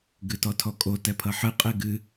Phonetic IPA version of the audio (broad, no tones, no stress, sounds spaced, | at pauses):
ɡ ɨ t ɔ tʰ ɔ kʼ o t ɛ pʰ ʌ ħ ɨ qʼ e ɡ ɨ